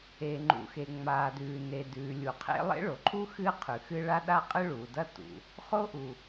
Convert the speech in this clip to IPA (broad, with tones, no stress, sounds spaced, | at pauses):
e˩ ŋ͡ǃ ṵ˩ x e˩ ŋ͡m aː˩ d ʉː˩ n e˩ d ʉː˩ lʲ u˩ qʰ ḛ˥ lˠ ḛ˥ ɭ o˩ ǃʰ u˥ x ɨː˥ qʰ ʉ˩ x ɨ˥ ɭ a˥ ɗ a˥ qʼ ɨ˥ ɭ uː˩ d ɐ˥ t ṵ˩ | χ o˥ ʔ u˩